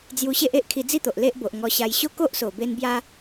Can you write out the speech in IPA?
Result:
d͡zju˧ɕe˦ʔe˦ʔ kʰi˧d͡zi˥˧t̪o˨ʔ le˦ʔbo˨ʔ ŋɔ˧ɕa˧j ɕo˥˧ ko˦ʔso˨˩ be˦n bja˦

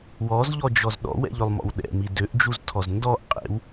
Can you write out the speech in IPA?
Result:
wɔzʎɔd͡ʒɔz ɗɔ̰wɛ̰ʎølˠmɔ̰w ɗɛ̰mi døʔd͡ʒuztʰɔz ndɔʔ qʼḛw

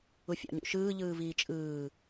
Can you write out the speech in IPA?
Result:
ufʲɑ̰ɲṵʃɯː ʎɯːviːt͡ʃʼɯː

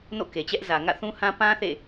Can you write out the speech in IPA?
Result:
no̰˦˨ke˨t͡ɕɛ˦ʔ zä˨ ŋä̰˦˨θũ˦hã˦ pã˦ θḛ˦˨

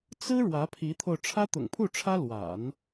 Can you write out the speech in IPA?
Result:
t͡sɹ̩˥ ɻwä˧˥pʰi˧˥t̪ʰo˧ʊ̯ ʈ͡ʂʰä˥t̪ʊ̰˨˩ŋpʰu˥˩ʈ͡ʂʰä˥ lwa̰˨˩˦n

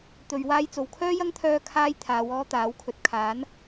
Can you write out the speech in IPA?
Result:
t̪ɵ˨ɥwaː˥jt͡so˨w kʰœː˥jɐ˥ŋt̪ʰœː˧ kʰaː˥j t̪ʰaː˨˧wɔː˥t̪aː˨˥wkʰɵ˨t̚ kʰaː˨˥n

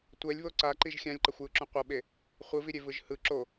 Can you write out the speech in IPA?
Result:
tʷɛlʲβo ǀaǃiʒ xʲãlʲǃʌxʷjɯǁũ qʷʌɓe | χʷɯviɾʲevɯʒ hɯ ǁo

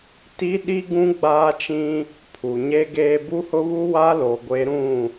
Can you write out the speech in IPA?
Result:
ti˦ɗi˦ ɡũ˦ ɡ͡baː˦t͡ʃĩ˦ | pʰu˨ɲe˦ɡeː˦ bu˦hʊ˦βu˦ wa˦lo˨ɡʷe˨˦ ɾũ˦˨

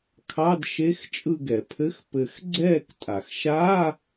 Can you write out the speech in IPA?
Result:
kʰɑ˧˥˧d ʃe˧˥˧x t͡ʃʼɯ˦˨ɡɛ˩pʰɘ˧˥˧x pɘ˨˩˦xɡ͡ǀɛː˦˨ktʼa˩xʃaː˧˥˧

